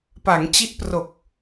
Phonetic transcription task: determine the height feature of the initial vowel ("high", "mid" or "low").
low